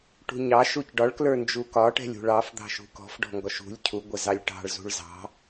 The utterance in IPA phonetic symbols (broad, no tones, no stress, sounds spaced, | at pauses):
ʈ ṳ ɲ ɑ ʃ u c ɖ ɒ ɭ k l ə˞ n d͡ʒ u k ɒ ʈ ɛ̤ lʲ ṳ ɭ ɑ f d̪ ɑ̤ ʃ ṳ k ɔ̤ f ɖ ɔ̤ ŋ ɡ ɔ ʃ ṳ lʲ cʰ u ɡʷ ɛ z ɑ lʲ ʈ ɑ̤ ɭ z ṳ ɭ z ɑ̤